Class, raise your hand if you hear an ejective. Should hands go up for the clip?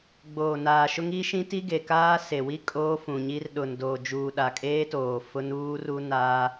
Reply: yes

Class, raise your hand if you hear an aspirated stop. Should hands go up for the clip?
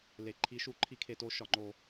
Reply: yes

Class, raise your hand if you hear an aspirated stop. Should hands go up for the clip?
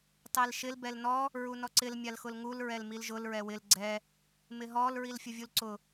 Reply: no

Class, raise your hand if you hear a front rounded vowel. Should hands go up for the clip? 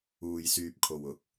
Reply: yes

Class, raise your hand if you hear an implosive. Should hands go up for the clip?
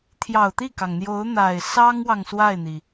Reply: no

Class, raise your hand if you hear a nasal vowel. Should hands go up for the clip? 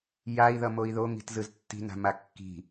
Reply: no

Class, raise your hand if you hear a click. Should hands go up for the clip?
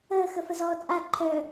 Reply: yes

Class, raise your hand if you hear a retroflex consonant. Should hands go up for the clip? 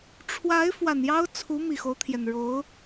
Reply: yes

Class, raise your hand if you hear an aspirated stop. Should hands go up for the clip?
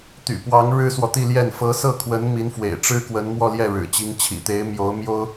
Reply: yes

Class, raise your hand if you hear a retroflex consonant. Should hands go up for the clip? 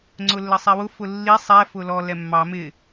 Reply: no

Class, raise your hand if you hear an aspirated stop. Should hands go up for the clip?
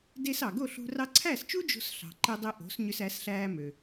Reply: yes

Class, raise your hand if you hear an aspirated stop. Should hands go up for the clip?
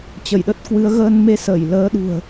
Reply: no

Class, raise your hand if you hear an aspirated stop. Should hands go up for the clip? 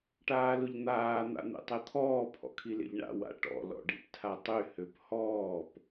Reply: yes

